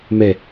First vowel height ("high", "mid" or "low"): mid